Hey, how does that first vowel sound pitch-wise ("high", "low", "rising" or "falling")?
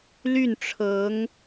falling